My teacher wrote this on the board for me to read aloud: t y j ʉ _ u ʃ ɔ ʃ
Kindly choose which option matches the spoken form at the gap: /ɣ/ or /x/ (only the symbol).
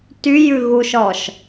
ɣ